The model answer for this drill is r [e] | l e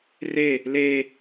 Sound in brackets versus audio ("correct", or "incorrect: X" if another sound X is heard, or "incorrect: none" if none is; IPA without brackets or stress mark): correct